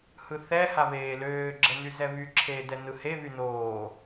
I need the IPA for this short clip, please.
h ɯ θ ɛ h a β eː l øː ɡ͡ǁ ə n y z ɛ β y ǁʰ eː d ɛ n ɯ h e β y n oː

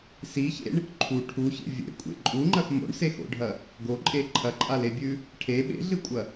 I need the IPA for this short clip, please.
s i ç ḛ ɳ | ǃʰ u ʈʰ u ç ḛ vʲ ḛ kʷʼ ḛ ǃʼ u ŋ͡ǃ ɐ x m o̰ ɳ s e x o̰ ɖʱ ɐ | ɡ o ǃʼ e ǃʰ ɐ ǃʼ a l e bʲ ʉ | ʈʰ e ɓ ḛ ɮ ɨ kʷʼ ɐ

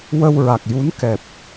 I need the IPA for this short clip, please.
w ə˧ w ɹ a˨˩ k̚ j u˧˥ n k ɛ˨˩ p̚

